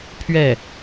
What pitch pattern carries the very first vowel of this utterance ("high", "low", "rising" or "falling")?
falling